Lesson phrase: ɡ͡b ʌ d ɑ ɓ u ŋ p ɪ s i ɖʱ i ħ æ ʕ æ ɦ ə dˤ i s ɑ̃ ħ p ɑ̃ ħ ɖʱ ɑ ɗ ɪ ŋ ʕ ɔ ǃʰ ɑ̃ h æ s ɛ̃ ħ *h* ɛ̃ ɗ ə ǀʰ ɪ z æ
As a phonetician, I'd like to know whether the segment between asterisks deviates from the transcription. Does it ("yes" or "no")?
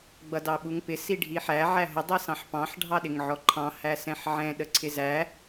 yes